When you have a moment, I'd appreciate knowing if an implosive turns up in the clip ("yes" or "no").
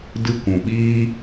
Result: yes